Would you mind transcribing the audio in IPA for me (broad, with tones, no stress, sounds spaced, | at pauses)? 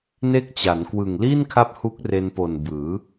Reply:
n e˦˥ k̚ t͡ɕ a˩˦ n k w ɯ˨˩ ŋ l iː˥˩ n kʰ a˦˥ p̚ h u˦˥ k̚ r e˧ n p o˨˩ n b ɯː˩˦